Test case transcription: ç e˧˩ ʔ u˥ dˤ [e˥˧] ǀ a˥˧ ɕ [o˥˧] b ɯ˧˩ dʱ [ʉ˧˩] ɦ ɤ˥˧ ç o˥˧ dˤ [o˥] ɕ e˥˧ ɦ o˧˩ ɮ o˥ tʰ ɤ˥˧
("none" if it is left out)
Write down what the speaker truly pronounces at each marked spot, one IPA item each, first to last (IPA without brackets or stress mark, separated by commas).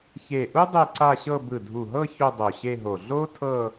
e˥˧, ɤ˥˧, u˧˩, o˧˩